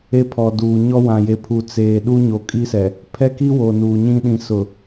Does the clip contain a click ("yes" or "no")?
no